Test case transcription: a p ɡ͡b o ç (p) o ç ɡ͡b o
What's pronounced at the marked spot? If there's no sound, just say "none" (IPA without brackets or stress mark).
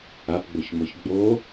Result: m